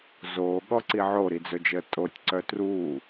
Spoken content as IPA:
zoːɠɔǀi ʕoɾid͡zɵd͡ʒəː tʼotʲǀœ truː

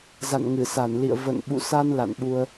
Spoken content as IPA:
za̰˧˨nŋɨ˧˩sa˧˩nlḭ˧˨ə̯ və̰˧˨nɓṵ˧˨sa˧n la̰˧˨nɓu˧ə̯

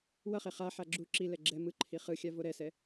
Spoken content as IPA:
wʌχe χaħa ɡ͡ǁu ǁilɛ ɡ͡ǁɛ mɯ ǃʰiχɯxʲa voɾɛsɛ

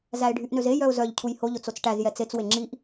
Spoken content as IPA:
zæɪ̯ɖʱyʔnøze jœʊ̯zœʎ cʰujho ʎot͡sot͡sʈæz jɛt͡set͡s weŋ͡ǁiʔ

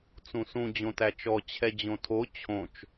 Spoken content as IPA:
t͡sũsũ d͡ʑõtæt͡ʃɔ t͡ɕʰɛd͡ʑõtʰo t͡ɕʰõt͡ʃ

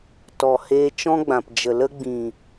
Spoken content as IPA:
tɔ˨ heː˧t͡ʃɔ̃˦ɡ͡bã˨p d͡ʒə˨lə˧ɡ͡bĩ˨

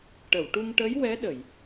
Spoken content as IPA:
ʈə˨˩˨wʈu˧ŋʈə˧˥j wɛ˧˥ ɗə˨˩˨j

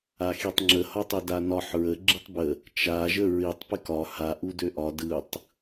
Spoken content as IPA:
axitˤŋ͡ǁə hɒtˤedanɒħ ɹə ɡ͡ǁɯtˤbə | t͡ʃa ʒəɹitˤ pɪkɒ ha ʔudøʔɒ dɯtˤ

